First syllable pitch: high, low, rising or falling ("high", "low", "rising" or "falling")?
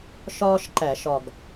high